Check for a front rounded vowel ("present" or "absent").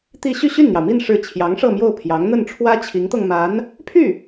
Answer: present